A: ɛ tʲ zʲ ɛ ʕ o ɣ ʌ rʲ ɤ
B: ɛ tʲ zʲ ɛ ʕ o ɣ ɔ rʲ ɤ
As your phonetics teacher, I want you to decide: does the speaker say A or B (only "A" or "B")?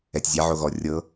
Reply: B